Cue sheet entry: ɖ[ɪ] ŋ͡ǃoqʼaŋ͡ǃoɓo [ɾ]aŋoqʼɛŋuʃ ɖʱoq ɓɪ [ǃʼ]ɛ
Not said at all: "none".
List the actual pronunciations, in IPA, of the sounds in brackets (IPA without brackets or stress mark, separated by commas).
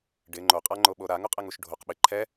ɪ, ɾ, ǃʰ